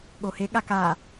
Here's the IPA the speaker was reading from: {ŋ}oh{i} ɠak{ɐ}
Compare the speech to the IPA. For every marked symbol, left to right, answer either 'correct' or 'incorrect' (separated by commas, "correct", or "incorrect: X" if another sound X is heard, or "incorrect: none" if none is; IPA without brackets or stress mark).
incorrect: ɠ, incorrect: e, incorrect: a